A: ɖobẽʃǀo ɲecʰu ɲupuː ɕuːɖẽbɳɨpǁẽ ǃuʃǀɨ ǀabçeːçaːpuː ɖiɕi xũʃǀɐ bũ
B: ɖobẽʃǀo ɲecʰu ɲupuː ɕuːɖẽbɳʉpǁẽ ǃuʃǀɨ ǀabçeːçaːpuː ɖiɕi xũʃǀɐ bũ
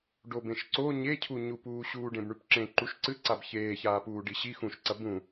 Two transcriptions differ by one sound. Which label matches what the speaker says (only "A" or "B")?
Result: B